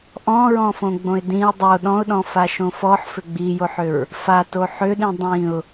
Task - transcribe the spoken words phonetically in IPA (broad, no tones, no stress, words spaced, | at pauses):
ʔɔ̃ɹɔ̃fõɡ͡bõɪ̯ dĩə̯ dˤo ɗɔ̃ʊ̯ɗɔ̃faʃõ fɔħfʏ ɡ͡bijoħʏɹ | fato ħʏɗĩ dˤĩʊ̯